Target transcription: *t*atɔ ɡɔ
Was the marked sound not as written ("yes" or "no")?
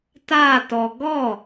no